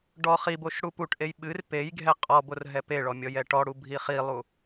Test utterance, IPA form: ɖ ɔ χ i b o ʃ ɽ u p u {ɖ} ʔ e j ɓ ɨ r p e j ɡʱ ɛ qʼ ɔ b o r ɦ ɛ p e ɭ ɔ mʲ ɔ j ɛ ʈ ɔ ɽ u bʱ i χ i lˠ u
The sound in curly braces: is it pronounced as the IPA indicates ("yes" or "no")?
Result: no